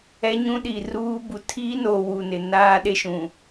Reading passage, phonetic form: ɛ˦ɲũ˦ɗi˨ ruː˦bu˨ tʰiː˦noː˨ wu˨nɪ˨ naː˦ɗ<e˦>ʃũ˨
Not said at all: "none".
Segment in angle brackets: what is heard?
e˦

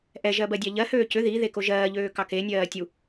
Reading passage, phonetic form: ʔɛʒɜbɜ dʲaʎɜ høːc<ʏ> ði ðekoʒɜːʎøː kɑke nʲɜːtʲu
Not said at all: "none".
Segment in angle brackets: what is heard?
ʏ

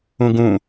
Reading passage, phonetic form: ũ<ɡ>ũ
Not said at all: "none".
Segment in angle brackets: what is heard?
ɡ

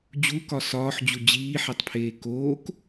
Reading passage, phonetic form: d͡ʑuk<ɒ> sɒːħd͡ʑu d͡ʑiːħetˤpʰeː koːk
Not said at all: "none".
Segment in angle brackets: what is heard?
ɒ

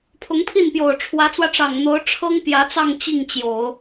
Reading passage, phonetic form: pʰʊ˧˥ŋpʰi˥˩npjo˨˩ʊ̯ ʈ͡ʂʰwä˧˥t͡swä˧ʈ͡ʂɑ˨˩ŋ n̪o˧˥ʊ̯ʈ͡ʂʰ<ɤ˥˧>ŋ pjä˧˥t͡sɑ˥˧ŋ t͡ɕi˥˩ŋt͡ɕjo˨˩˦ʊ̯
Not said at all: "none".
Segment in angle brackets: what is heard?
ɤ˥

